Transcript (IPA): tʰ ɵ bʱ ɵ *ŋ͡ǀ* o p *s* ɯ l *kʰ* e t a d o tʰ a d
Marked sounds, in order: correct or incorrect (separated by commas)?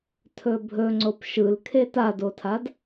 correct, incorrect, correct